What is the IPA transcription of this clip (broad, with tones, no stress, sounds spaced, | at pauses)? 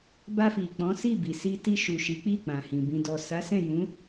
b a˧ f i˨ k͡p ɔ̃˨˦ s i˦˨ b i˨ s i˧ t i˧ ʃ u˨ ʃ i˨˦ k͡p i˦˨ k͡p ã˨ h ĩ˨ b ĩ˨ d ɔ˨ s a˨˦ s ɛ̃˦˨ j ũ˨˦